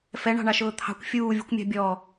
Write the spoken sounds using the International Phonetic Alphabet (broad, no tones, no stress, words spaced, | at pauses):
fɛɳɑ̤ɳɑʃʊː t̪ʰɑ̤kʷ fʲuːvʲṳkʷmʲɑ̤ bʲɔ